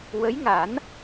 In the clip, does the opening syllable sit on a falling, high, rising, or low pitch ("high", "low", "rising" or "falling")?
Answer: rising